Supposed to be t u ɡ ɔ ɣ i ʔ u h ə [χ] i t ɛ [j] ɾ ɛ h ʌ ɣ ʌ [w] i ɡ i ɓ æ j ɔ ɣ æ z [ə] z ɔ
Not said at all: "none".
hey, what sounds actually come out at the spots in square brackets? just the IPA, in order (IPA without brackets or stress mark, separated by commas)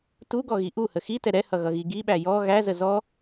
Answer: x, none, ɣ, ə